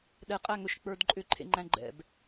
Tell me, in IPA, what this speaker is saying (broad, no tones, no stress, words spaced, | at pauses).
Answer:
ɗɛ qʼæŋɵʃ k͡pə˞dǃʼʏǃʰḛ ŋ͡ǃæ̃ɡ͡ǃɛ̰b